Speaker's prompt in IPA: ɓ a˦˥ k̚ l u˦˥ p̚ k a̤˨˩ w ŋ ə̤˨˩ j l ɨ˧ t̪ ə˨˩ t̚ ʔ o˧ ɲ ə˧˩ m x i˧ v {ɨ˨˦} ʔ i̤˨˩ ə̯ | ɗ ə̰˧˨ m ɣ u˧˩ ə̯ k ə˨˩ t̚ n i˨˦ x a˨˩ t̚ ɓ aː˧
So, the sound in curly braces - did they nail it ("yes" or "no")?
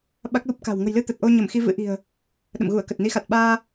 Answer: no